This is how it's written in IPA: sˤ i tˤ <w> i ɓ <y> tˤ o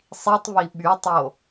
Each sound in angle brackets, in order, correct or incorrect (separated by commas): incorrect, correct